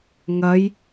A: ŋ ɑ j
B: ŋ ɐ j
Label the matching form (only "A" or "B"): B